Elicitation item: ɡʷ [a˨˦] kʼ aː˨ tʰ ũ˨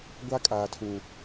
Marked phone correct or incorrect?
incorrect